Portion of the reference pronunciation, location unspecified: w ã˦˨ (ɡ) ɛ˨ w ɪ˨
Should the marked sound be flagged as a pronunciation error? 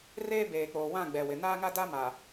yes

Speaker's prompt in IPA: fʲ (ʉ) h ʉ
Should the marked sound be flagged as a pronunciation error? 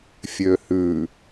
yes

